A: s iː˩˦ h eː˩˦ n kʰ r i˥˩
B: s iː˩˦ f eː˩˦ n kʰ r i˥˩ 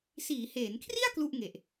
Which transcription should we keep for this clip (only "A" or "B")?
A